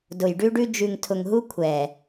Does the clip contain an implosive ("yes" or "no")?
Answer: no